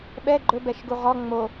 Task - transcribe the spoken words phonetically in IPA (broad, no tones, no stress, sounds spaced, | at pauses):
ɓ ɛ ɡ͡ǃ ɵ b ɛ ʃ ɡ u ʁ ɔ ŋ͡m o